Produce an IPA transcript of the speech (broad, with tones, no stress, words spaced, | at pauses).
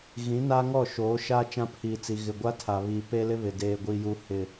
ɣĩ˨˦ na˦ŋɔ˦˨ʃoː˨˦ʃa˦ t͡ʃã˦pʰiː˨t͡si˨ ɣɪ˨ɡʷa˦ tʰa˨βiː˨ pe˦lɪ˦βɪ˨ deː˨ɡʷi˨ ju˦ hɪ˨